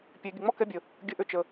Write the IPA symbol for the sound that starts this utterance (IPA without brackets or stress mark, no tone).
pʲ